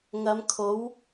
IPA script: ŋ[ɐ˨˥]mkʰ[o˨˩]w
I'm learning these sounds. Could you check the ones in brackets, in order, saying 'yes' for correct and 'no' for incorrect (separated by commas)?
no, no